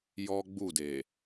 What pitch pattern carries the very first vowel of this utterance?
high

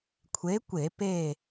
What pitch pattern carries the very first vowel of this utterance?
rising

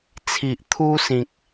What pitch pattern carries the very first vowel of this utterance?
low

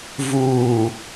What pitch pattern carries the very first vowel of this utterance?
low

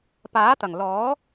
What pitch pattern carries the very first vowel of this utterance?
rising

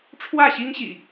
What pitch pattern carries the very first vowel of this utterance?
falling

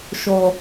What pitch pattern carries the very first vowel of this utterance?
low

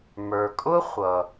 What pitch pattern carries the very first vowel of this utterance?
low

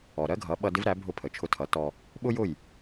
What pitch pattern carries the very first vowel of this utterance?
low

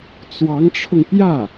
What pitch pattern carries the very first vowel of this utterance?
rising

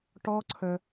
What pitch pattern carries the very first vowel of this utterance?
high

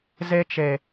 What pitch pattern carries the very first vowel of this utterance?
high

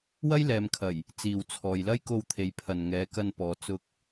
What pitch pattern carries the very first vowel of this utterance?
high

